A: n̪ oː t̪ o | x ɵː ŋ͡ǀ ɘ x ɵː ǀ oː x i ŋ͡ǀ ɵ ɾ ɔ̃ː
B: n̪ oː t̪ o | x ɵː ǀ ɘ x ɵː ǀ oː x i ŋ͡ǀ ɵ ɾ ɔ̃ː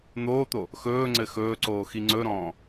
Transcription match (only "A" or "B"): A